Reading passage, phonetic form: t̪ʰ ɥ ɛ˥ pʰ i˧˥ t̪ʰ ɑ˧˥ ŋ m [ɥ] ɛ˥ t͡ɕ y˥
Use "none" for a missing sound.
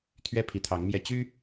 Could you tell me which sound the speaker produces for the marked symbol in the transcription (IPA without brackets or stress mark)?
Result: j